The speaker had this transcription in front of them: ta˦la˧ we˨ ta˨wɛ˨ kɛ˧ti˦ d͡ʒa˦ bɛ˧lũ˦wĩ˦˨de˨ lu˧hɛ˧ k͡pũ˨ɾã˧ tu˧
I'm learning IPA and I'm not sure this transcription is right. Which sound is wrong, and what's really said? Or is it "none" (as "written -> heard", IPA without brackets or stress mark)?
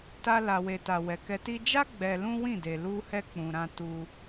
b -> ɡ͡b